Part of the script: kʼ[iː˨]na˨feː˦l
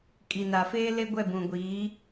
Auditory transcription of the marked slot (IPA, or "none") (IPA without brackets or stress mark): i˨